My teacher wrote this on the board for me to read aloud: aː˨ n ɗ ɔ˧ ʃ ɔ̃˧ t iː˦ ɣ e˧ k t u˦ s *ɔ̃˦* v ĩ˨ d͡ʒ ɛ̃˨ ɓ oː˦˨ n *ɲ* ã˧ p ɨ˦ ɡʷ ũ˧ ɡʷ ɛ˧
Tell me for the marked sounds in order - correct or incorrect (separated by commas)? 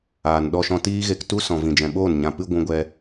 incorrect, correct